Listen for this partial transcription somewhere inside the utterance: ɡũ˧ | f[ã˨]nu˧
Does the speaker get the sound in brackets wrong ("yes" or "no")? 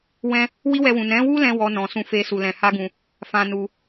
yes